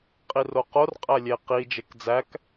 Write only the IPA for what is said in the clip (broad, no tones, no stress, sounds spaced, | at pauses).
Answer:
qʼ i r o q o r qʼ æ lʲ e q i d͡ʒ e k d͡z æ k